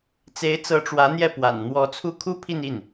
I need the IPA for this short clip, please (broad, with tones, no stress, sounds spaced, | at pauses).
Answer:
t͡s e˧˥ ɪ̯ t͡s ɤ˧˥ ʈ͡ʂ w ä˧˥ n̪ j ɛ˥˩ p w a̰˨˩ n n̪ w ɔ˧˥ t͡sʰ u˥˩ kʰ u˥ pʰ i˥˧ n i˥˩ n